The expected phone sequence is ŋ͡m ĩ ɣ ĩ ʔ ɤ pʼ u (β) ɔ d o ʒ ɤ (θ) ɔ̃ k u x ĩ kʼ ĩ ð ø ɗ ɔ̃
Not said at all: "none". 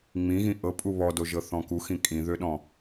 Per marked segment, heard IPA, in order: β, θ

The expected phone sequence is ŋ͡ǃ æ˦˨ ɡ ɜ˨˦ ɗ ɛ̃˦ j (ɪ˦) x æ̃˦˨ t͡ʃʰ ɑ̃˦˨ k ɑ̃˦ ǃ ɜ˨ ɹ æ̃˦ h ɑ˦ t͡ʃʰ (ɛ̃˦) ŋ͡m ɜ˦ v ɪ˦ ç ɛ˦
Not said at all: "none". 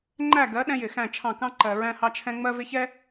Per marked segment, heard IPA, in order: ɪ˨, ɛ̃˦

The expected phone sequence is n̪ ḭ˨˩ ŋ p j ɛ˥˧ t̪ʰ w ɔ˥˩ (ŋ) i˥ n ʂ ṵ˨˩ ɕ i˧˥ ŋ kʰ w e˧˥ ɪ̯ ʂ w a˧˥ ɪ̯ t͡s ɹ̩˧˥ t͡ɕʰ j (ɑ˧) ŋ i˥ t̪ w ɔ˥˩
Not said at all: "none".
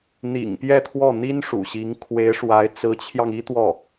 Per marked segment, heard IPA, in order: n̪, ɑ˧

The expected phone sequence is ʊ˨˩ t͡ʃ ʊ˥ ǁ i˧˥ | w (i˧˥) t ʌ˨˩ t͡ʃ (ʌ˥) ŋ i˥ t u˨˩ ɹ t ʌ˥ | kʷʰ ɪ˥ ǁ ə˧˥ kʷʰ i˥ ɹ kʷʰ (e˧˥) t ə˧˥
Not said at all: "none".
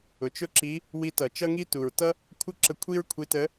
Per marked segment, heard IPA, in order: i˧˥, ʌ˥, i˧˥

